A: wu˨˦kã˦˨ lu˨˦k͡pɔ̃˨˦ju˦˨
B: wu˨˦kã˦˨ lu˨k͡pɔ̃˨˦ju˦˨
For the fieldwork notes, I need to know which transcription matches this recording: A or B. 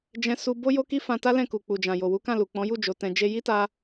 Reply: B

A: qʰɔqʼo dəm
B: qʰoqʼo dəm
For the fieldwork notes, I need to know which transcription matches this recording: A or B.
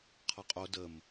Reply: A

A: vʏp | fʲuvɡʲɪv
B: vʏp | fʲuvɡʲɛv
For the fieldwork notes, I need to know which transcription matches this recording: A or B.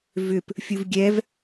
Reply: B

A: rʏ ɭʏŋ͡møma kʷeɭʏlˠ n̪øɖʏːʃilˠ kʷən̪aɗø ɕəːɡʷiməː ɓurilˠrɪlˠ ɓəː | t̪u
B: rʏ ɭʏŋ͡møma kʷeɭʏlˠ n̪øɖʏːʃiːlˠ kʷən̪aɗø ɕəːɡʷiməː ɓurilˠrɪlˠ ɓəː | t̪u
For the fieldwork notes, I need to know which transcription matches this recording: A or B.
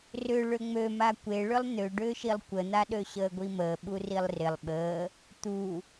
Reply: A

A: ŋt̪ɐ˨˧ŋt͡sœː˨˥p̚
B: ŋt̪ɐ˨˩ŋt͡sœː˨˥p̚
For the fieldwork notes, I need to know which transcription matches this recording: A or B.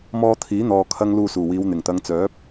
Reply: A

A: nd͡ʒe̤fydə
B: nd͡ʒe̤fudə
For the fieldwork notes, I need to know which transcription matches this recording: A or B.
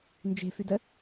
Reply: A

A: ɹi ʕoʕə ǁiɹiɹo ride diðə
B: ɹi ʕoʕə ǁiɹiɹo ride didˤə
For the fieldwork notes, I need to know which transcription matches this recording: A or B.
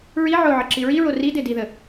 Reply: A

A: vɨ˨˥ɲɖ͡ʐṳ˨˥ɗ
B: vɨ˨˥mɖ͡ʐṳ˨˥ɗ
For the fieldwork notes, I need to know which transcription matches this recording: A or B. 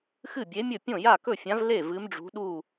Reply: B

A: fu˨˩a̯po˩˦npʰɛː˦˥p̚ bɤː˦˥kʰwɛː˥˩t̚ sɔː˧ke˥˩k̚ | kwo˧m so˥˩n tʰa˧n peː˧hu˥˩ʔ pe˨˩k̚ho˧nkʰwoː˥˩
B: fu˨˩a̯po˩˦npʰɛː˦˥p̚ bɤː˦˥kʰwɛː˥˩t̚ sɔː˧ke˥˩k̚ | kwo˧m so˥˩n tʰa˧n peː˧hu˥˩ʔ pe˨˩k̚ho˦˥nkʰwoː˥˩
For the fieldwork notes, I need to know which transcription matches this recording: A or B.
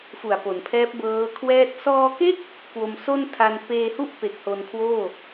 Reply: A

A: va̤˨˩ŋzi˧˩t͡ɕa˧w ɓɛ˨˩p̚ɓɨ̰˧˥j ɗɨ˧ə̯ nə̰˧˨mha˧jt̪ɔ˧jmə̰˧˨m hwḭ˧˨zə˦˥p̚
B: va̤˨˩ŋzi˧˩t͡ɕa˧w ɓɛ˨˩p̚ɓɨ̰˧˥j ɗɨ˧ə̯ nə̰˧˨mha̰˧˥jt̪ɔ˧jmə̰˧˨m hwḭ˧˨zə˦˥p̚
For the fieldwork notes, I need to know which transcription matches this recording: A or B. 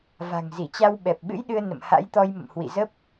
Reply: B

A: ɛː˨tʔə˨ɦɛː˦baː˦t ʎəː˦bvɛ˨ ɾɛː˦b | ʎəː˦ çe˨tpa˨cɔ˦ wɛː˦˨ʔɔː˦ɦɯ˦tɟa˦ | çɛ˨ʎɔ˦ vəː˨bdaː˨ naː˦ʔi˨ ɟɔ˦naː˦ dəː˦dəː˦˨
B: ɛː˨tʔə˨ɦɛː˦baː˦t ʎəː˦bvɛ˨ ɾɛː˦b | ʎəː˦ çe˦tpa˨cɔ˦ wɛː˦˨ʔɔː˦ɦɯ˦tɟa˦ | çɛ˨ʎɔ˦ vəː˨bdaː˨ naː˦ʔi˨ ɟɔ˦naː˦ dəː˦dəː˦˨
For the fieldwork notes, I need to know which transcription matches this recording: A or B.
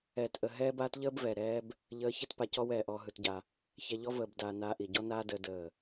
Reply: B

